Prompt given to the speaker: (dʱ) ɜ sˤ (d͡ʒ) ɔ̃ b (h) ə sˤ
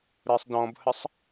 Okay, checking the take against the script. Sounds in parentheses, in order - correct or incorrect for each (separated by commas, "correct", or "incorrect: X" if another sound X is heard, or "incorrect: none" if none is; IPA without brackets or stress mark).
incorrect: ɾ, incorrect: d, correct